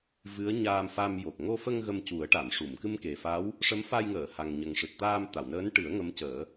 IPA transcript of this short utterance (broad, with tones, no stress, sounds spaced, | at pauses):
v ɨ˧˥ ə̯ ɲ aː˧ m f a˧ m j o˨˩ k̚ ŋ o˧ f ə˧ ŋ ɣ ə˧ m c u˨˩˦ ə̯ ʈ a˨˩˨ m ʂ u˨˩˨ m k ɨ˧ m k e˨˩ f a˧˥ w | ʂ ə˧˥ m f a˧ j ŋ əː˨˩˨ h a˨˩ ŋ ɲ ə˨˩ ŋ ʂ ɨ˨˩ t̚ t̪ aː˧ m t̪ a˨˩˨ w n əː˧˥ n ʈ ɨ˨˩˦ ə̯ ŋ ə˧˥ m c əː˨˩˦